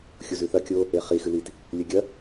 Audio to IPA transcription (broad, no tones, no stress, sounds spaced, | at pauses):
xʲ u z ʉ θ ɐ kʲ o | e χ i x ɨ l i t | lʲ ɵ ɡʲ ɐ